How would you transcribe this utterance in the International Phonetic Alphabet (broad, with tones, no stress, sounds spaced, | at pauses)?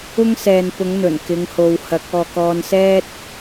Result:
ʊ˥ ŋ s ɛː˨ n p ʊ˨˥ ŋ n̪ ɵ˨˩ n k ɪ˨˧ ŋ h o˨ w h ɐ˨˥ k̚ ɔː˨ k ɔː˧ n s ɛː˥ t̚